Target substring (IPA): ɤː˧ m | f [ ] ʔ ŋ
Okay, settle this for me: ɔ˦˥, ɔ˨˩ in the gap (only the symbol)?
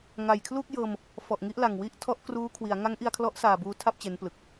ɔ˨˩